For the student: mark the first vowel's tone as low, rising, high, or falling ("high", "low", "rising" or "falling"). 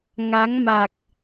rising